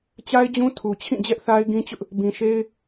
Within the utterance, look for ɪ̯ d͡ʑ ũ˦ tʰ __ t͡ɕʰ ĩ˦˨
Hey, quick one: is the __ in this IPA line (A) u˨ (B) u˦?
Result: A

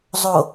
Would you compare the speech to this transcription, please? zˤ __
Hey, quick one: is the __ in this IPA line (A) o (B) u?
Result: A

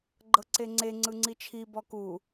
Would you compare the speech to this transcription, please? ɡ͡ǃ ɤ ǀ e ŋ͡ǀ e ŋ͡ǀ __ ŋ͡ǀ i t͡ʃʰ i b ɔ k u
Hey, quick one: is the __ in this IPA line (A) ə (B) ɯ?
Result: B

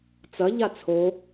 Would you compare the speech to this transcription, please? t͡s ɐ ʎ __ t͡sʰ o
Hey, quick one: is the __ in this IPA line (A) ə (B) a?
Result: B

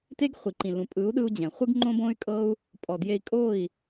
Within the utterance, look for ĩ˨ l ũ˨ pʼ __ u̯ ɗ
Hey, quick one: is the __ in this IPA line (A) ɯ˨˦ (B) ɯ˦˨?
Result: A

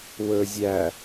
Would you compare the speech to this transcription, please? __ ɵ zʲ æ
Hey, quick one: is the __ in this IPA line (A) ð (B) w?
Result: B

